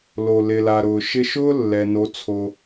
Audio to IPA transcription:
l o˨ l ɪ˨ l a˨ ɾ ʊː˨ ʃ ɪ˧ ʃ ʊː˦ lː ɛ˨ n o˨˦ t͡sʰ o˧

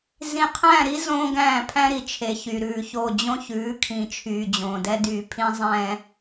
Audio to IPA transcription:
z ĩ˨ qʰ æ̃˦˨ ɾ i˦ z õː˦ ɡ æ̃ː˦˨ pʰ æ̃˦ ɾ i˨ t͡ʃʰ e˨ ç y˨ ɾ ʉː˨ ç o˦˨ d͡ʑ õ˦ ç ʉː˨˦ kʰ ĩ˨ t͡ʃʰ yː˨ d͡ʑ õː˨ d ɛ˦ d yː˨ pʰ ĩ˦ zˤ ɛ̃˦

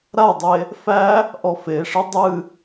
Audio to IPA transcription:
ɾ a dˤ e | f æ | ʔ ɔ f e ʂ ɨ dˤ ɨ

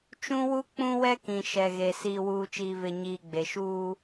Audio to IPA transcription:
t͡ʃ ũ˦ w u˦ k͡p ũ˦ w ɛ˦ k ĩ˨ ʃ ɛ˨ ɣ e˨ s iː˨ w uː˨ t͡ʃ iː˨ v ɪ˨ ɲ iː˨ ɡ͡b e˨ ʃ uː˦

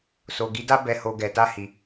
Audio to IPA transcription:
s o˨ ɡ i˨˦ d a˦ b ɛ˦˨ h o˧ ɡ ɛ˨ t a˧ h i˨

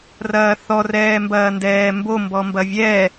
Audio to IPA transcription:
r ɐː θ ɔ r ɛː m b ɐː n d ɛː m b o m b ɔ m b ɐ vʲ ɛ

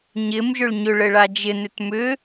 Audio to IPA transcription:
ɲ ɪ m ʒ ʏ ɭ ɲ ʏ ɭ ɘ ɭ a d͡ʒ ɪ n ʏ t m ʏ

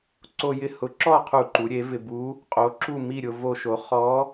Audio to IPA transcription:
ǀ o˧ j ɪ˧˥ h ʊ˩˥ ǁ ɔ˥˨ qʰ u˧˩˧ ǃ u˩˧ ɾʲ e˩˥ v ɪ˧ b u˧˥ | qʼ o˩˥ ǁ u˥˨ m i˥˨ ɾʲ ʊ˧ v o˧ ʃ o˩˥ χ ɔ˧˥

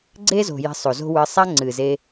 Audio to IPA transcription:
ɡ͡ǀ e˦ z o̤˨ j i̤˧ sˤ o˨ z o̤˦ w ɨ˧ sˤ a˦ ŋ͡ǀ ɨ˨ z e˧

